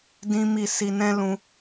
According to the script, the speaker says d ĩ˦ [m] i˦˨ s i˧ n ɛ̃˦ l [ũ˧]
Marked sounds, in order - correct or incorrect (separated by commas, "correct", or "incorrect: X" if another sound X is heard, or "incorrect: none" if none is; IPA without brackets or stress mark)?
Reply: correct, incorrect: ũ˦